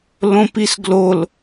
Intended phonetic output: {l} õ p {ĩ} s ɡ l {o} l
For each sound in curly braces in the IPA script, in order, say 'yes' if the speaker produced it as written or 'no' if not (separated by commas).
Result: yes, no, yes